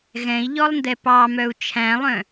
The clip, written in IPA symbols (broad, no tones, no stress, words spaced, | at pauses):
ɣɛ̃i̯ʎɔlˠndɛ pɑmœu̯ t͡ʃʰæ̃lˠœ̃